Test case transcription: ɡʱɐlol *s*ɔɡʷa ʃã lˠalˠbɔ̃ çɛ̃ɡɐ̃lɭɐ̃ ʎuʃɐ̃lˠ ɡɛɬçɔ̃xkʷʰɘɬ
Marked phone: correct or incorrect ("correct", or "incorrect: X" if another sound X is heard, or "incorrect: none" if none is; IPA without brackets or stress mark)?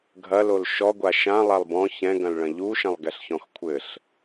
incorrect: ʃ